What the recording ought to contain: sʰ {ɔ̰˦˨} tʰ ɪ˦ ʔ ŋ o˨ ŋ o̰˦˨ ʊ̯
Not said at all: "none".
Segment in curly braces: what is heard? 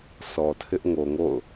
ɔ˨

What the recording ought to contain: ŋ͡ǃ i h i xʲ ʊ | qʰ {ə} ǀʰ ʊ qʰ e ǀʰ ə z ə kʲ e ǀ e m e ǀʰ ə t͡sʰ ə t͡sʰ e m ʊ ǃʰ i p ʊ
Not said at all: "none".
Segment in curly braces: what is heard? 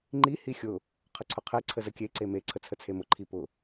ə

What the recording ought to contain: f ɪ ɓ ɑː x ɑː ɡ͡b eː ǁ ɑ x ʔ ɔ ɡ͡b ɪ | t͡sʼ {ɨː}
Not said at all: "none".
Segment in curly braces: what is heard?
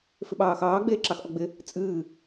ɨː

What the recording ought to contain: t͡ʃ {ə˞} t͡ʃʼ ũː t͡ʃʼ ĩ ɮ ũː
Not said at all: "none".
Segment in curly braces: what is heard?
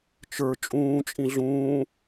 ə˞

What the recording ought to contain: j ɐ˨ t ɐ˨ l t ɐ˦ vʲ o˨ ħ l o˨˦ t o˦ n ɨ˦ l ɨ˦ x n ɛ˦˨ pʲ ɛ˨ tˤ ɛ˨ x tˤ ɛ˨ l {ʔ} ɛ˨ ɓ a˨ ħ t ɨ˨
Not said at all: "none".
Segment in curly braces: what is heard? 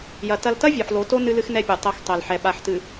ħ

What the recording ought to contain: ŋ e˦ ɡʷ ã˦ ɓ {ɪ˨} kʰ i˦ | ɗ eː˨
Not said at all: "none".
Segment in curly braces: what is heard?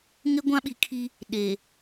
i˨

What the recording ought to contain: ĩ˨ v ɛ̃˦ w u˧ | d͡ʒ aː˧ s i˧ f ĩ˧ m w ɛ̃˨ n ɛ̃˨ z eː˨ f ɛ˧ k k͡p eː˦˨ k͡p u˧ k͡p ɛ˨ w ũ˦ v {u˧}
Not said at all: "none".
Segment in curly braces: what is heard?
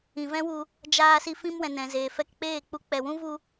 u˧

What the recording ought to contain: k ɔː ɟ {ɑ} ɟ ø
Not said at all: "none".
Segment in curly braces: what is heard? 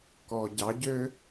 ɑ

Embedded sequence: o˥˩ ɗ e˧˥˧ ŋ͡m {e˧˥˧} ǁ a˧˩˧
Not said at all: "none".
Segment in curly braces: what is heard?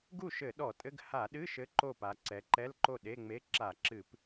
e˧˥˧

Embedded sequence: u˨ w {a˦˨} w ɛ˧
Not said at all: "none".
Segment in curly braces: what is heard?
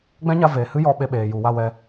a˦˨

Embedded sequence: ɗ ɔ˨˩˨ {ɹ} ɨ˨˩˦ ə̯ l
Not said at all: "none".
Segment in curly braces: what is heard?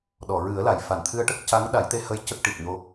ɹ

